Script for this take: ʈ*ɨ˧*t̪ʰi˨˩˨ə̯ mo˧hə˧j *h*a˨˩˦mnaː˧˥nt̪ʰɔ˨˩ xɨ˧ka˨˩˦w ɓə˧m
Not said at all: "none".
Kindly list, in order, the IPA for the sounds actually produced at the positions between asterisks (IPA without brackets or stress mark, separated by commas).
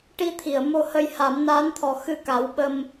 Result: i˧, h